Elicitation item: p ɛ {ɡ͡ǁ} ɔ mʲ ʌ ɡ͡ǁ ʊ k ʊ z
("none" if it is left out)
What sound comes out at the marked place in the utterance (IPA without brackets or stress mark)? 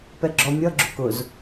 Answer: ɡ͡ǁ